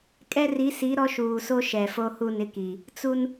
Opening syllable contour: high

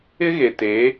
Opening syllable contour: high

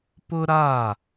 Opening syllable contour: high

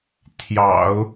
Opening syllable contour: low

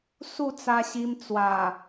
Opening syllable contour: falling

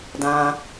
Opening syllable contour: low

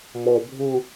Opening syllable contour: low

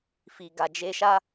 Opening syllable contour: low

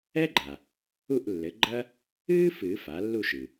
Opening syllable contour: high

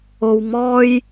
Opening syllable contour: low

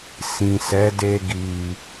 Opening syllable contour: low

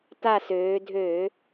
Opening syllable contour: falling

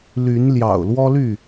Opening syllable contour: rising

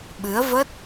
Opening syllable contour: rising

